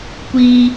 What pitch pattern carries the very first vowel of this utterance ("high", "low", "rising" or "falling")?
high